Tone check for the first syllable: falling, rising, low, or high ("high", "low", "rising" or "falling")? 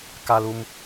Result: high